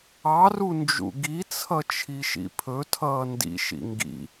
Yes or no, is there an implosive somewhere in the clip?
no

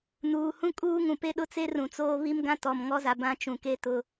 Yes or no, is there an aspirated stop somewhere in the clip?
no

